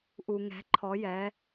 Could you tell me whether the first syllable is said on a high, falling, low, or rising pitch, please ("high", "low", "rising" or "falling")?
low